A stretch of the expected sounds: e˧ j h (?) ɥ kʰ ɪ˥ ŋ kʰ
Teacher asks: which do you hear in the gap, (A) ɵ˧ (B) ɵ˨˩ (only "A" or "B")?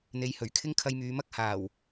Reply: B